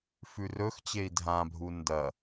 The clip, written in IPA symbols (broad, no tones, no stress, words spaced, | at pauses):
fʉrɵxt͡ɕei̯ dʱãbʱu ndɐ